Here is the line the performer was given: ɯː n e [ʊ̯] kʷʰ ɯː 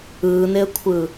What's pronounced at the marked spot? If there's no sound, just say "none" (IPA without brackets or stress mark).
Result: ə̯